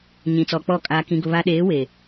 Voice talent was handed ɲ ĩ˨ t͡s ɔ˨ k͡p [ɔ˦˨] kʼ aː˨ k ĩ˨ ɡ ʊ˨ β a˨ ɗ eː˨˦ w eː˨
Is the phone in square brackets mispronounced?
no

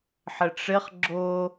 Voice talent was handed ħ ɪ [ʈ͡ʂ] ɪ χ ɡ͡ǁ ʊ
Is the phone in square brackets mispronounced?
no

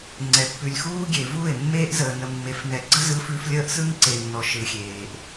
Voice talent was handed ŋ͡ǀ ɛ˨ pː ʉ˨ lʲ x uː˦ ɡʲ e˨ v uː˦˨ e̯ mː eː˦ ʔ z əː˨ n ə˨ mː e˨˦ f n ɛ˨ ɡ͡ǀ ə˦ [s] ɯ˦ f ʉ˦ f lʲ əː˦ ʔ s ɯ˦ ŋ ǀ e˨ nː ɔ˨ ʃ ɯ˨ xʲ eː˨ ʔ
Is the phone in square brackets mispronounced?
yes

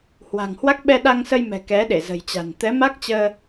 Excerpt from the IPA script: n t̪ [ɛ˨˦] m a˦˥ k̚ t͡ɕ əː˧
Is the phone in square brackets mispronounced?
no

